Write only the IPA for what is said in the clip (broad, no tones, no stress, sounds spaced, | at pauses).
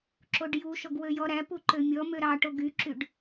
ǁ o ɖ j u ʃ ɔ ɡ w ø j ɔ ɾ æ p u ǃ ø mʲ ɔ m ø ɾ ɑ ʈ o ɡ y ǁ y ɖ